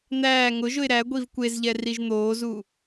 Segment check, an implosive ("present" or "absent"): absent